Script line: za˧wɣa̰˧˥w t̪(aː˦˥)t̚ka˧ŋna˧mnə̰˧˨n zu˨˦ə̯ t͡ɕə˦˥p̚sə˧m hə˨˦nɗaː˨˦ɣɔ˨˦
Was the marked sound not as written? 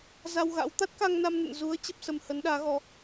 yes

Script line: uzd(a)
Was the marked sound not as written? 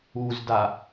no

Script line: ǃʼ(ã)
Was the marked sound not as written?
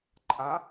no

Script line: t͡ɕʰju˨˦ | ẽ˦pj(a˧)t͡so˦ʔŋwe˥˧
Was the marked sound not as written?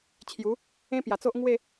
yes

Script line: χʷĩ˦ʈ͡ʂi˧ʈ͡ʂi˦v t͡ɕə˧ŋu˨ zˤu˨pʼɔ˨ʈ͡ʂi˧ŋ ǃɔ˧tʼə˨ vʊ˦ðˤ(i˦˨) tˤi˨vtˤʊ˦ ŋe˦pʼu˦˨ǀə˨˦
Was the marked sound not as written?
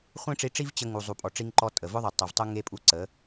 yes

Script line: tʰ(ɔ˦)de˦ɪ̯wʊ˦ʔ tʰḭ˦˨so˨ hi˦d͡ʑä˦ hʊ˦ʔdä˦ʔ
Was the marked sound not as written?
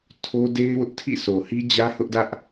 yes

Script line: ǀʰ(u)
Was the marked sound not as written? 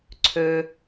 yes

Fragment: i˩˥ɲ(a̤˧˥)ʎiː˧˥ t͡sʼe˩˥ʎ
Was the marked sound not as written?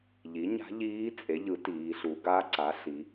no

